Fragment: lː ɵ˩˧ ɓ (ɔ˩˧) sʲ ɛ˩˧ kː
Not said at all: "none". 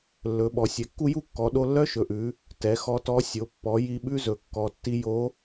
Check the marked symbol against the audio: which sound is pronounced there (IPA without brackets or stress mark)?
ɔ˩